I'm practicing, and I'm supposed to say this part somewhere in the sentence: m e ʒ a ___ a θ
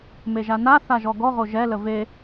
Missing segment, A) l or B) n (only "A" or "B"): B